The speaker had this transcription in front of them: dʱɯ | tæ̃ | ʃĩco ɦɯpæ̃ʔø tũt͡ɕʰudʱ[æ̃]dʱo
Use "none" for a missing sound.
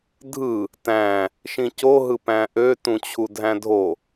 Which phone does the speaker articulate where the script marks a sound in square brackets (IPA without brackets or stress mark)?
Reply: æ̃